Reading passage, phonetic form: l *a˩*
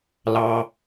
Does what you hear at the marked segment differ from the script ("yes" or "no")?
yes